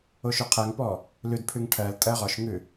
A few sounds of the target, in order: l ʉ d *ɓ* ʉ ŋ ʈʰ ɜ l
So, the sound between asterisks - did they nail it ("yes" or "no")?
no